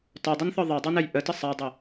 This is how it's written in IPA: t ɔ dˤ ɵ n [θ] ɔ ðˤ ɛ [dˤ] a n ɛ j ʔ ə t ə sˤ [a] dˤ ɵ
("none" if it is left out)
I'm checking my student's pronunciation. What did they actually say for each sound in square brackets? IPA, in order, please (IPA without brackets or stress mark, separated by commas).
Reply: θ, dˤ, a